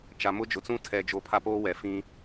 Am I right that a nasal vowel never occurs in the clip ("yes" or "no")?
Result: no